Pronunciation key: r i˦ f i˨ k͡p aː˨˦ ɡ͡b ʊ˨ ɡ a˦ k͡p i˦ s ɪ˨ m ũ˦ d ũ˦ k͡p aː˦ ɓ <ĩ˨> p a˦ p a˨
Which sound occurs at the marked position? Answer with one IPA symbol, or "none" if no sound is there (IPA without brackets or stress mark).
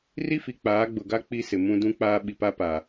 i˨